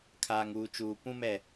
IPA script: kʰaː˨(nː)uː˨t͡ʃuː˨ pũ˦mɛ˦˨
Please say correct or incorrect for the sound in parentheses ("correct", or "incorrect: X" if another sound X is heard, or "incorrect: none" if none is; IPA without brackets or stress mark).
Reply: incorrect: ŋ